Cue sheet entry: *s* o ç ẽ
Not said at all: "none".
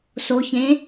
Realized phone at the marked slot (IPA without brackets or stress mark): s